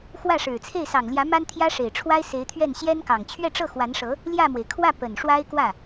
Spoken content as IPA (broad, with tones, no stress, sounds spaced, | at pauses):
x w ä˥˩ ʂ ɻ̩˨˩ t͡sʰ e˥˩ ɪ̯ s ɑ˨˩ ŋ l j ä˧˥ m a˥ n t̪ʰ j ä˥ ʂ e˨˩ ɪ̯ ʈ͡ʂʰ w a˥ ɪ̯ s e˧˥ ɪ̯ t̪ʰ ɥ ɛ˥˩ n ɕ j ɛ˥ n k ɑ˨˩ ŋ t͡ɕʰ ɥ ɛ˥˧ ʈ͡ʂ ɤ˥˩ x w a˧˥ n ʂ ɤ˧˥ | l j ä˥˩ m w e˩ ɪ̯ kʰ w ä˥˩ p ə˨˩ n ʂ w a˥ ɪ̯ k w ä˥˩